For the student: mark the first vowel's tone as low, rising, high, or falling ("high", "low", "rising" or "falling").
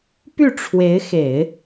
falling